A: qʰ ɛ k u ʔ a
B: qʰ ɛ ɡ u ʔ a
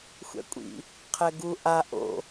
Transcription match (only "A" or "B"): B